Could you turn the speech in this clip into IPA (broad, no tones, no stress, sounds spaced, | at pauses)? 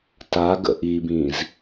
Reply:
t a ɡ ə̰ ʔ i b ĩ z